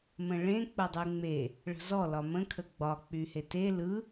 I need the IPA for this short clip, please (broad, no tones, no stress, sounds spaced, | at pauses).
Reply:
m ə̃ ɭ ẽ k͡p ə dˤ y ŋ͡m e | ɭ ə̤ z ɔ l ɒ m ə̃ kʰ ə ɡ͡b ɒ k͡p y h e t e l ɯ